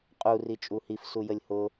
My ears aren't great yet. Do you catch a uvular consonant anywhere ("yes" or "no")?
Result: yes